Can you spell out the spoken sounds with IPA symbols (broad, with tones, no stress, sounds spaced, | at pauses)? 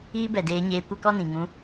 iː˦ b ɛ˨ d eː˧ ɲ eː˧ kʷ ɛ˦ k ɔ˦ n ĩ˨ ŋ ũ˧